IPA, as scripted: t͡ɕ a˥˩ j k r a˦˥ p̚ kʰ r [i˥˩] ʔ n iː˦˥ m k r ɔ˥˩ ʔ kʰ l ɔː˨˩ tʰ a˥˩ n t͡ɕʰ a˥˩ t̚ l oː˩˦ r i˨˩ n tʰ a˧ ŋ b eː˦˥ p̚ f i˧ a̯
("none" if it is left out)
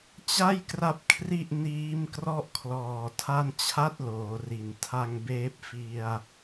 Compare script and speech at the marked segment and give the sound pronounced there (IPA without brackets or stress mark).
i˥˩